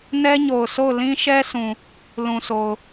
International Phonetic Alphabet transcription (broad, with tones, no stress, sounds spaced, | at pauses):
n ɛ˦ ɲ o˨ ʊ̯ sʰ o˦˨ ʊ̯ l ĩ˦ ʃ ɛ˦ sʰ ũ˨ | l ũ˨ s o˨ ʊ̯